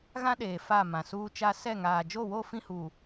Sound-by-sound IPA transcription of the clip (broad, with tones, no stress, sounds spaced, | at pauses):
ɣ ã˦ ɗ eː˨ f a˦˨ m ã˨ s uː˦ t͡ʃ a˦ s ɛ˦˨ ŋ aː˨ d͡ʒ o˦˨ w o˦˨ f ĩ˦˨ h uː˨